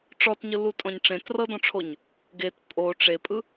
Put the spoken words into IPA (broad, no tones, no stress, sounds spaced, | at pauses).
ʈ͡ʂ ɔ t ɲ ɯ l u tʼ ɔ̃ ɲ ʈ͡ʂ ẽ t r ɤ d ɔ̃ ʈ͡ʂʰ o ɲ | ɡ e t pʼ o ʈ͡ʂ e pʼ ɯ